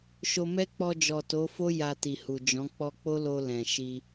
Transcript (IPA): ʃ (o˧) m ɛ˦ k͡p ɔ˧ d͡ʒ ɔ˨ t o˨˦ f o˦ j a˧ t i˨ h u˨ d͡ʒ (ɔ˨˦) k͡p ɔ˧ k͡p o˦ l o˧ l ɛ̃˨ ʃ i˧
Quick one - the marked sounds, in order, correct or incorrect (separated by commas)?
correct, incorrect